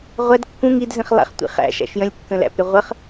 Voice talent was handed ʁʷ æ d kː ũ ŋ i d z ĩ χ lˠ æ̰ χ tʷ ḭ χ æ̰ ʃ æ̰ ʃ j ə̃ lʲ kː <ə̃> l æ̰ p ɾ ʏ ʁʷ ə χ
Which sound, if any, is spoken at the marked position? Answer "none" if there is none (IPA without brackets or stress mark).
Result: ə̃